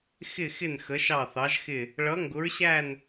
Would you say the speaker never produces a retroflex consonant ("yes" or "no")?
no